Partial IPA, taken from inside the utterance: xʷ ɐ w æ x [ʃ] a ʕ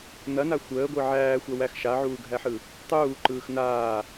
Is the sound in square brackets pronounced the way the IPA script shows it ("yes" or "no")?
yes